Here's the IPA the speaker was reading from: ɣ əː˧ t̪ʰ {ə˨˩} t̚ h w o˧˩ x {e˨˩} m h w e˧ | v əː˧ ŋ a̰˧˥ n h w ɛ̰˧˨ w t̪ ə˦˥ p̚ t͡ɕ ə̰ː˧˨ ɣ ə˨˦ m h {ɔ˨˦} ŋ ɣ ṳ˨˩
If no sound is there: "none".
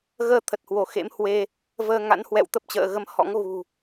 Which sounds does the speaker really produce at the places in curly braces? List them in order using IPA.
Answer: ə˨˩, ḛ˧˥, ɔ̰˧˥

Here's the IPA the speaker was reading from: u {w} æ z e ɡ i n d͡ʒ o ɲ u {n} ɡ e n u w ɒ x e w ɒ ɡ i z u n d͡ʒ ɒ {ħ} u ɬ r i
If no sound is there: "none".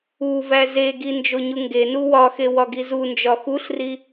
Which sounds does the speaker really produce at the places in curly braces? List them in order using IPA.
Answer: v, ŋ, x

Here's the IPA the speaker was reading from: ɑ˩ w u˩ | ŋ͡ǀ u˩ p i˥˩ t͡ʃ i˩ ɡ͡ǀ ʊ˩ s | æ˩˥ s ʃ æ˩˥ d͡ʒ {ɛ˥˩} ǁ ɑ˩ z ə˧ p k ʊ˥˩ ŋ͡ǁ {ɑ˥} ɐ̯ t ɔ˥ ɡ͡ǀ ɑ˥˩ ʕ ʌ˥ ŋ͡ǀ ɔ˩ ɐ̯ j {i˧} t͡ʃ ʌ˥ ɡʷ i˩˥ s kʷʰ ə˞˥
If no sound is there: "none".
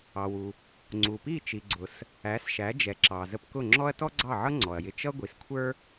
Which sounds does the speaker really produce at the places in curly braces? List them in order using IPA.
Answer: ɛ˩, ɔ˥, ɪ˧

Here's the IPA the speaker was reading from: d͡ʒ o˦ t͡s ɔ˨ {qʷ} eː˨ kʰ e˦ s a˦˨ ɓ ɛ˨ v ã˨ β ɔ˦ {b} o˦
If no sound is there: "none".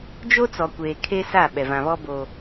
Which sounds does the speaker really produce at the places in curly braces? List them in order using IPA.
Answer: kʷ, b

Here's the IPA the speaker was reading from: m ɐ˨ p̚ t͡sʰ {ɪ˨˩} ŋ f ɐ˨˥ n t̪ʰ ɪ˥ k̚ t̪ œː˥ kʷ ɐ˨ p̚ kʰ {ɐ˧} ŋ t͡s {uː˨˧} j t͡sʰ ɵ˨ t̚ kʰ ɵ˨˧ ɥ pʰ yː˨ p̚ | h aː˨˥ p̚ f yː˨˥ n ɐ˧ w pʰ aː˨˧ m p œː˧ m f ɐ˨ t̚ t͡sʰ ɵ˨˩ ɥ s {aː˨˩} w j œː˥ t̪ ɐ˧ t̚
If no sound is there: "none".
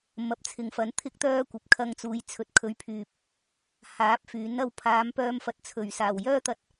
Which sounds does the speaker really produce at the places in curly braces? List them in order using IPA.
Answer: ɪ˨, ɐ˧, uː˨˧, aː˨˩

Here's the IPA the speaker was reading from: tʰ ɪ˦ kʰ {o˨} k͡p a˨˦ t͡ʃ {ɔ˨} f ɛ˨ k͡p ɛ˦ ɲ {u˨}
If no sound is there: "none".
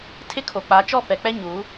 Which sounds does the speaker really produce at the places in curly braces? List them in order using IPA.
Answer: o˨, ɔ˦˨, u˨˦

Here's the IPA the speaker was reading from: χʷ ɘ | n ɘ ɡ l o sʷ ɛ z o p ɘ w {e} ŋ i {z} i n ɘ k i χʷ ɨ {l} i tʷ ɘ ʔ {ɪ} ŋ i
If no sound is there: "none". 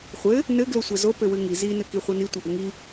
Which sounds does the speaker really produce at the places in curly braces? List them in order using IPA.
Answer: ɨ, z, n, ɨ

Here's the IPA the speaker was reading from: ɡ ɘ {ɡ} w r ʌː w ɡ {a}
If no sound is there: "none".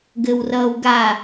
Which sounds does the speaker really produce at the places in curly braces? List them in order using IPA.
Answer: none, a

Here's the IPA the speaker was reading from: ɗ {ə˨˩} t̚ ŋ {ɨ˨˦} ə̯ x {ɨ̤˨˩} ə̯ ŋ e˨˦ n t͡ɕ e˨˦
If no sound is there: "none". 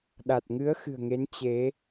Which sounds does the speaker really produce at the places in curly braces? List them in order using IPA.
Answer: a˨˩, ɨ˨˦, ɨ̤˨˩

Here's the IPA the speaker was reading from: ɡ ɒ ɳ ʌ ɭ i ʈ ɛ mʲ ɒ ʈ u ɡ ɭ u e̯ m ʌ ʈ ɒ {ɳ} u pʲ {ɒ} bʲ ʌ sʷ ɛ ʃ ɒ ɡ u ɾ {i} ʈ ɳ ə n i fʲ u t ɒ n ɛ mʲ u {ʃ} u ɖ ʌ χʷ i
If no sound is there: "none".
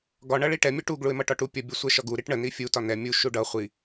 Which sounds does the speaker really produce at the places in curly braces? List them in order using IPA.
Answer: ʈ, ʌ, i, ʃ

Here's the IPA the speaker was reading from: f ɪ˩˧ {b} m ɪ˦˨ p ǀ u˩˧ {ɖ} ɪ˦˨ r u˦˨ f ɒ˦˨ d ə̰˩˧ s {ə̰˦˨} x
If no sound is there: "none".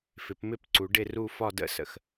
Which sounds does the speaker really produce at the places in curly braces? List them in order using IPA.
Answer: p, ɖ, ə̰˩˧

